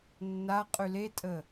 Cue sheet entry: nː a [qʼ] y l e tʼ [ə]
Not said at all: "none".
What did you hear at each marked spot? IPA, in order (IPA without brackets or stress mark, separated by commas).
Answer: qʼ, ə